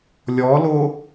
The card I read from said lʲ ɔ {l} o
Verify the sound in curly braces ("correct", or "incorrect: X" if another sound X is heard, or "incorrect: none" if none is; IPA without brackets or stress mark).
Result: correct